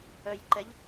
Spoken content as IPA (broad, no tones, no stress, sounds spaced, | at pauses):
œ j ǃ ɛ ʎ